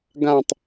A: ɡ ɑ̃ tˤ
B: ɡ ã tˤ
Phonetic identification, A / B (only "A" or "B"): B